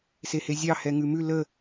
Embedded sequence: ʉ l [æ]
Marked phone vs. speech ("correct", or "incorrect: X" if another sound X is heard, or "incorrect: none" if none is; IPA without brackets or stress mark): incorrect: ə